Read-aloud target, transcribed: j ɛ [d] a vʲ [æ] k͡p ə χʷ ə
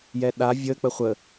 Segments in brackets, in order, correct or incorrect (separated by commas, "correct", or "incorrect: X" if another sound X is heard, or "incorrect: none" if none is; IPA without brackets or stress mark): incorrect: ɗ, incorrect: ə